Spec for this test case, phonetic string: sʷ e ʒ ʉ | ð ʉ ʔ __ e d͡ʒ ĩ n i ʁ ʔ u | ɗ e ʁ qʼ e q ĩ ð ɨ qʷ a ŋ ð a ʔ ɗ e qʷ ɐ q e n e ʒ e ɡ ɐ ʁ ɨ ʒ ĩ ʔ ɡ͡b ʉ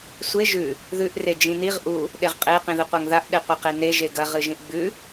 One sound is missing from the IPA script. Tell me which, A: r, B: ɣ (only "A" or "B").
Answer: A